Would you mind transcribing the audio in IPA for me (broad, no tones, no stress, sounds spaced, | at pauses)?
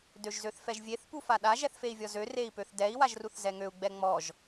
d ø ʒ z ø θ f ɛ ʒ vʲ e θ p u f a ɗ a ʒ ɛ θ f e i̯ vʲ ɔ z ø r e i̯ p ø θ d ɛ i̯ w a ʒ r u θ z ɛ ŋ ø u̯ ɡ͡b ɛ ŋ͡m ɔ ʒ